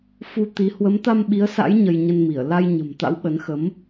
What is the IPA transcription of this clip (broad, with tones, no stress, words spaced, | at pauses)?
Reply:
fu˧t̪i˨˦ hwə˨˦mt̪a˧mɓi˨˦ə̯sa̰˧˥j ɲə˧jɲə˧nmi˧˩ə̯ la˧jɲə̤˨˩mt̪a̰˧˥w ɓə˨˦nxə˨˦m